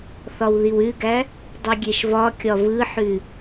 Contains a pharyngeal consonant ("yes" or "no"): yes